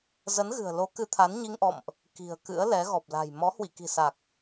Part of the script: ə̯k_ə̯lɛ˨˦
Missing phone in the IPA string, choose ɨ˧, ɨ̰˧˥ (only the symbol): ɨ̰˧˥